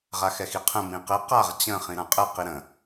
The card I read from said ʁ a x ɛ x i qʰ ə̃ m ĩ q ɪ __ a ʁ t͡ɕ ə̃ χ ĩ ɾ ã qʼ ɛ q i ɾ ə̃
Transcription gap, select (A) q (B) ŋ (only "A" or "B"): A